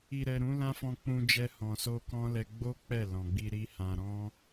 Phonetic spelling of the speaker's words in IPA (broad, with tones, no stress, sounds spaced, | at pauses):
i˨ ɾ ɛ˨ ɾ ũ˨˦ l ã˦ f ɔ̃˧ k͡p ũ˧ d͡ʒ ɛ˧ h ɔ̃˨ s o˧ k ɔ̃˦ l ɛ˧ ɡ͡b o˦ k͡p ɛ˦˨ l ɔ̃˨ ɡ͡b i˧ ɾ i˦ h ã˧ ɾ ɔ̃˦